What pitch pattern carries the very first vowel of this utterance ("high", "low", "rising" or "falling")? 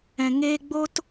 low